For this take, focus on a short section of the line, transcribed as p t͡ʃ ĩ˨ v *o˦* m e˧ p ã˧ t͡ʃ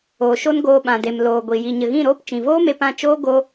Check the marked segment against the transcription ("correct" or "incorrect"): incorrect